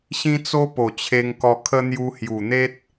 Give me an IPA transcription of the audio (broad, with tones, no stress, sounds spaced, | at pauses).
ɕ ĩ˦ t͡s o˦ p o˨˩ t͡ɕʰ e˧ ŋ k ɔ˧ kʰ ə˦ n̪ j u˧ h j u˨˩ n̪ e˦ t̚